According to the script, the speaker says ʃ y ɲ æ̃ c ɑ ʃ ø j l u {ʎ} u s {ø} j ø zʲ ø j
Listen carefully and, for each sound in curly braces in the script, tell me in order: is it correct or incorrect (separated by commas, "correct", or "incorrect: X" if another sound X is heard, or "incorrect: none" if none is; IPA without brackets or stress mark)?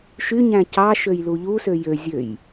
correct, correct